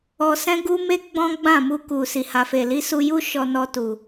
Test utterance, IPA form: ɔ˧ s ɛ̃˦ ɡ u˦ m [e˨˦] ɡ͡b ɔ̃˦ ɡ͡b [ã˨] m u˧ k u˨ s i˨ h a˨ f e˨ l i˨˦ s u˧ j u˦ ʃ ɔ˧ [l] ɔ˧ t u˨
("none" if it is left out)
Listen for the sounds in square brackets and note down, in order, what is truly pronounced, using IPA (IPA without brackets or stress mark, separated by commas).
e˦, ã˦˨, n